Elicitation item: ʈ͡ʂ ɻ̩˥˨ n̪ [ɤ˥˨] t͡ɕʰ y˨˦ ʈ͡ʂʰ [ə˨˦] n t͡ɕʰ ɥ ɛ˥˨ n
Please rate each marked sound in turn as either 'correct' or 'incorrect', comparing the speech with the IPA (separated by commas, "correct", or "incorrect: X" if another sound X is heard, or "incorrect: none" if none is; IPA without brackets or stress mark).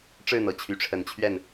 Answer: incorrect: ɤ˨˩, correct